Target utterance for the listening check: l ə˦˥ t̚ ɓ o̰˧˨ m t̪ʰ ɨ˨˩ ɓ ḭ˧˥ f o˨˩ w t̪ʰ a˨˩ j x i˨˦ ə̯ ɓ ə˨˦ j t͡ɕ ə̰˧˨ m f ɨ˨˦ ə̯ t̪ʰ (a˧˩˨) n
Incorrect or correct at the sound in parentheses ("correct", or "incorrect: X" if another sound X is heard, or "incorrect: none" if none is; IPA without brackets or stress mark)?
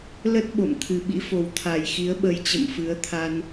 incorrect: a˧